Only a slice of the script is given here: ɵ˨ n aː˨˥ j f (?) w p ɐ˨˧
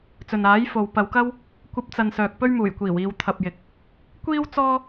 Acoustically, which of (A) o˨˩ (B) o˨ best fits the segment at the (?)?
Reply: B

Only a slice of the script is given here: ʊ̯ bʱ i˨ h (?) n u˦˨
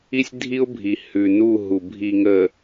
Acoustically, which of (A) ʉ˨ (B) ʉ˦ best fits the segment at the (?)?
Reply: A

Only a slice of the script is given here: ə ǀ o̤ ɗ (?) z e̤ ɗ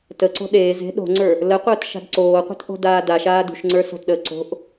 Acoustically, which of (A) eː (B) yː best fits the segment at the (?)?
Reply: A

